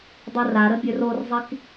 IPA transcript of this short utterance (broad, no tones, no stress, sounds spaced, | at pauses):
dˤ u r a ɾ ə bʲ ø r o r zˤ i k